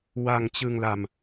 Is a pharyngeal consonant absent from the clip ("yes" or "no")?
yes